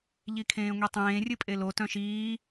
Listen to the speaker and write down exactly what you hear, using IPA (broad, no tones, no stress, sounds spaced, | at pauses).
ʎ i kʰ ẽː ŋʷ i tˤ ẽː rʲ ɨ pʼ e l o t œ̃ ʃ iː